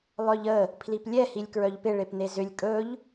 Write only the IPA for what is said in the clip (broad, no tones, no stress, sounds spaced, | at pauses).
lˠ œ ʎ ə | pʰ l i p lʲ ɛ h i lʲ k ɹ œ ʎ p ɪ ɭ e p n̪ e z ʏ lʲ kʼ ɵ ʎ